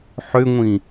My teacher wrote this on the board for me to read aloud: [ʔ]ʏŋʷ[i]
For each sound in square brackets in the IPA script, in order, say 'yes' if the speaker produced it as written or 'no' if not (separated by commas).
no, no